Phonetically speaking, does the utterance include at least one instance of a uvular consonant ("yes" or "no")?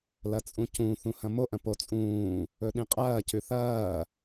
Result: yes